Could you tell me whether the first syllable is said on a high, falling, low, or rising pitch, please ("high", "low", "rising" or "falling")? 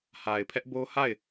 low